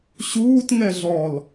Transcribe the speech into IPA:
ɕ uː t ŋ ɛ ɮ ɔ l

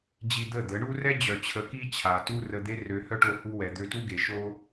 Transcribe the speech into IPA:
d͡ʑ i˧ d̪ ə˦˨ d̪ ə˨˦ ɳ u˦ r ɛ˦ d͡ʑ œ˨ t͡ɕʰ ə˨˦ k i˦ t͡ɕʰ a˨ t u˦ r ə˧ d̪ e˦ r ø˧ h œ˦ ʈ o˧ h u˧ w ɛ˨ d̪ ø˧ t u˦ ɡ e˨ ʃ o˦

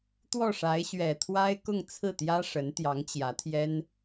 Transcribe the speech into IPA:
t̪ w ɔ˥˩ ʂ a˧˥ ɪ̯ ɕ ɥ ɛ˨˩ t̪ʰ w a˥ ɪ̯ k ʊ˥˧ ŋ t͡sʰ ɹ̩˥˩ t̪ j ä˥ ʂ ə˧˥ n t̪ j ɑ˧˥ ŋ t͡ɕ j ä˧˥ t̪ʰ j ɛ˥ n

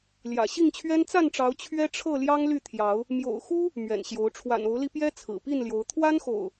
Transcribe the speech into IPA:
l j ä̰˨˩ ɕ i˥˨ ŋ t͡ɕʰ ɥ ɛ˦ n t͡s a˥˨ n ʈ͡ʂ ɑ˨˦ ʊ̯ t͡ɕʰ ɥ ɛ˦ ʈ͡ʂʰ ɤ˥˨ l j ɑ˦ ŋ l y˥˨ t̪ʰ j ɑ˨˦ ʊ̯ | m j o̰˨˩ ʊ̯ x u˦ | m ɥ ɛ̰˨˩ n ɕ j o˨˦ ʊ̯ ʈ͡ʂʰ w a̰˨˩ n o˨˦ ʊ̯ l i˧ p j ɛ˦ t͡sʰ ɹ̩˨˩ p i˥˨ n l j o˨˦ ʊ̯ t̪ʰ w a˦ n x o̰˨˩ ʊ̯

